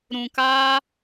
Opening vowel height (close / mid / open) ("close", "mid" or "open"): close